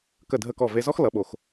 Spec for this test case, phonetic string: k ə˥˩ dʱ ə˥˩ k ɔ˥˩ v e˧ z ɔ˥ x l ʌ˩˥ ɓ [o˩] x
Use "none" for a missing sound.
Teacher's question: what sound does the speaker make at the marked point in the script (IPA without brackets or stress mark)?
o˩